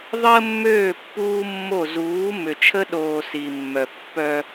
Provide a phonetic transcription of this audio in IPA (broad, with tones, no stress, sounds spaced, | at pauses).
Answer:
ðˤ əː˦ mː øː˦˨ pː uː˦ mː o˦˨ z uː˨˦ m ʏ˨ t͡ʃʰ ə˦ ɗ oː˨ s iː˨ mː œ˨ pː œ˦